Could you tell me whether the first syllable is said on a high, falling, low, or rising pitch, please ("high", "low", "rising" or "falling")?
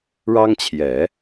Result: high